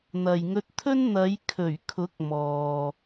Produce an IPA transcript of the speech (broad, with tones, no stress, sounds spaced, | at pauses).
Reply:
n̪ ɐ˨ j ŋ ɵ˧ t̚ t̪ʰ ɵ˥ n n̪ ɐ˨˧ j kʰ ɵ˨˩ ɥ kʰ ʊ˨˥ k̚ m ɔː˨